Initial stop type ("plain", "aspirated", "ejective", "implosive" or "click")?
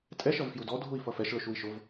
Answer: ejective